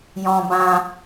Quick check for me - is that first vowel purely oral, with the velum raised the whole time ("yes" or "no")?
no